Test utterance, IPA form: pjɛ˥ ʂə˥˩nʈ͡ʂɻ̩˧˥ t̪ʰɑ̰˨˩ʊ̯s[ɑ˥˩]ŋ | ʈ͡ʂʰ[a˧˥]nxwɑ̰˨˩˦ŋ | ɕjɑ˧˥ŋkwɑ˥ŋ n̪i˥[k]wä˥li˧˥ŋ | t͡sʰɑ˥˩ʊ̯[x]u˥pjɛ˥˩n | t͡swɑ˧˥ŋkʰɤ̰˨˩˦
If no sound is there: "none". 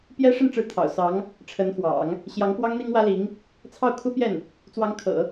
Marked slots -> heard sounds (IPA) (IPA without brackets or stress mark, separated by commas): ɑ˧˥, ə˧˥, ŋ, kʰ